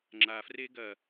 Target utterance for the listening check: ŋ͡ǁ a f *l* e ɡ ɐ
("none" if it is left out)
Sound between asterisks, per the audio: r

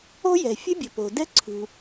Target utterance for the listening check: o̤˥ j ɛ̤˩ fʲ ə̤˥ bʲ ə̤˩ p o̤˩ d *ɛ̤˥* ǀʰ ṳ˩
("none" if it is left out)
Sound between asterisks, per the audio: ɛ̤˥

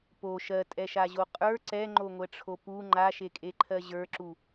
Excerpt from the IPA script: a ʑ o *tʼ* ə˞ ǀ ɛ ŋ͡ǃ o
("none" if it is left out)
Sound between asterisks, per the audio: qʼ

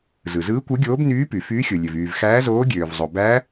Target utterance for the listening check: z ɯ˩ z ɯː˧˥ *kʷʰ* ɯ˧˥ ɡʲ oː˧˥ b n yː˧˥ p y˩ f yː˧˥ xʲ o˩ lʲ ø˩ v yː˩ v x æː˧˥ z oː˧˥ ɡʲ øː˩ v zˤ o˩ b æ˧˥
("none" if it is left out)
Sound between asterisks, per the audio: kʷ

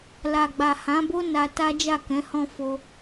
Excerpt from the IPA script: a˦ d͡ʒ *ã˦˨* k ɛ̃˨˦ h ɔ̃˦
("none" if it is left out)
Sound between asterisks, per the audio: a˦˨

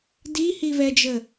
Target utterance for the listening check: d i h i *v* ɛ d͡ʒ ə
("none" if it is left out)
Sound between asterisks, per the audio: v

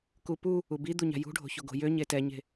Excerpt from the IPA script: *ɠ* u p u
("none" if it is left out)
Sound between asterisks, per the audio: k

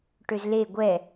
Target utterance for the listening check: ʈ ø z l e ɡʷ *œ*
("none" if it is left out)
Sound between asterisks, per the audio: ɛ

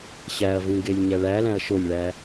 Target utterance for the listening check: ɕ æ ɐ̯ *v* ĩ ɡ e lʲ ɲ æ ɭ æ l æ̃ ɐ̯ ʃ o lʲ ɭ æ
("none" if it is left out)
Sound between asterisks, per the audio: v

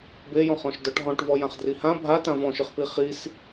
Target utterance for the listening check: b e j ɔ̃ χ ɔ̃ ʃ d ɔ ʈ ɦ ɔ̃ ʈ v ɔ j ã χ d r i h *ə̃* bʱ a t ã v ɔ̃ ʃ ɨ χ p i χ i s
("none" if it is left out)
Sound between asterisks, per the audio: ã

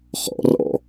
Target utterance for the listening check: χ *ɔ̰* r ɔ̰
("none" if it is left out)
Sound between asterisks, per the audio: ɔ̰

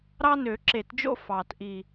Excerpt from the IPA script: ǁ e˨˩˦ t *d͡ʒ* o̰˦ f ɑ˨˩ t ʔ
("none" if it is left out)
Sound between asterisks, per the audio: d͡ʒ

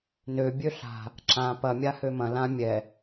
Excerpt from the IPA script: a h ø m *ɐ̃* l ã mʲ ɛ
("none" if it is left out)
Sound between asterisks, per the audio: ɐ̃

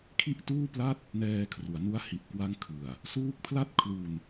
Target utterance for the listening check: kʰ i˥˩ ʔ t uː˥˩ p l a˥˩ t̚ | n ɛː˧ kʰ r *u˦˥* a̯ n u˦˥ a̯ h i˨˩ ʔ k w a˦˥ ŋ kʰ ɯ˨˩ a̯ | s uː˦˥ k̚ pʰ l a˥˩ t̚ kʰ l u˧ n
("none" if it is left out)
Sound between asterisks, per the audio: u˩˦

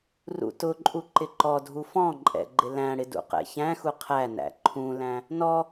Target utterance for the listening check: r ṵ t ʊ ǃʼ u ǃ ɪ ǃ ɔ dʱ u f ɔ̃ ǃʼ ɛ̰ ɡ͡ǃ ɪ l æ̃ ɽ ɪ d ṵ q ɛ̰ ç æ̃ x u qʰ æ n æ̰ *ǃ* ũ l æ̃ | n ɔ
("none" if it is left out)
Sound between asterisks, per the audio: ǃʰ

